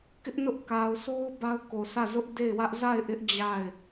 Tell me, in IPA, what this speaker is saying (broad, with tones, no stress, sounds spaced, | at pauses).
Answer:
k ɪ˦ ʔ n ʊ˦ ʔ k a˨ ʊ̯ s o˦ ʊ̯ b a˦ ʊ̯ k o˨ sʰ ä˦˨ z ʊ˦ ʔ d e˦˨ ɪ̯ w ä˦ ʔ z a˦˨ ɪ̯ ʔ ɪ˦ ʔ d͡ʑ a˦˨ ɪ̯